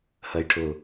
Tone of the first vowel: low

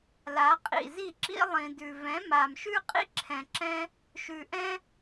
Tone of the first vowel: rising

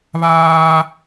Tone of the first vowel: high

